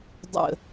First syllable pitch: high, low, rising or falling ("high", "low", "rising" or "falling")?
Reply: low